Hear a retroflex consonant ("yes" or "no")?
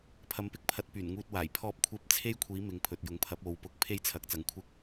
no